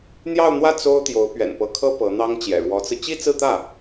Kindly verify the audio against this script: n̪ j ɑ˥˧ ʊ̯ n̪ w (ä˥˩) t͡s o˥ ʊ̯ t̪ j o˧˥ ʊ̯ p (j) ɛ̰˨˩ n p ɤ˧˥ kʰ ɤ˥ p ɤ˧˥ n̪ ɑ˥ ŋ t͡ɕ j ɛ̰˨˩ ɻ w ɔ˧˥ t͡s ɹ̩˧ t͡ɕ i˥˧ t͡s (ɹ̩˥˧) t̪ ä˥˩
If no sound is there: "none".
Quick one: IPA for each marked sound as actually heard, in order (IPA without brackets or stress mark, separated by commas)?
ä˥˩, ɥ, ɹ̩˥˧